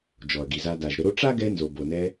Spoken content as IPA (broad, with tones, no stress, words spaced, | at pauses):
d͡ʒɔ˨ɐ̯ɡi˨za˧ da˨ʒɾə˧ɾo˦ ʈ͡ʂa˦ɡɛ˧ nzo˨bo˨nɛ˧